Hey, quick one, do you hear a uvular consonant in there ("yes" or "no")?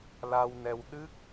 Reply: no